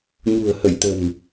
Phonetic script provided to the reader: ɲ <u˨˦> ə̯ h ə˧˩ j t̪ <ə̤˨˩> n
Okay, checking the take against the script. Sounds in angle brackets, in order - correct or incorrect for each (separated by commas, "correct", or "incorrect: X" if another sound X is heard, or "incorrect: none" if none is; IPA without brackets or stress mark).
incorrect: ṳ˨˩, correct